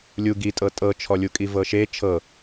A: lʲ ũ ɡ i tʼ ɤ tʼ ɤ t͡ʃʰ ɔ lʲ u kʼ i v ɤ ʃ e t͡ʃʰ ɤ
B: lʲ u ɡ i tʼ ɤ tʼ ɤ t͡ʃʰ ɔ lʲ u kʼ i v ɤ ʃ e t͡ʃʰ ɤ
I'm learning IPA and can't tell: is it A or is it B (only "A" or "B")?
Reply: B